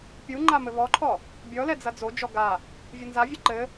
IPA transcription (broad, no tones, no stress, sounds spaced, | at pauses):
pʲ u ŋ͡ǃ a m ɘ β ɔ ǃʰ ɔ | bʲ ɔ l ɛ d͡z ɐ d͡z o d͡ʒ ɔ ɡ a | vʲ ɘ n z a vʲ ɘ ǃ ɘ